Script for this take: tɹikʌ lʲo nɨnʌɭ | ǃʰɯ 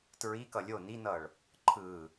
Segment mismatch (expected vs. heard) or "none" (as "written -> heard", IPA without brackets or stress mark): ɨ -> i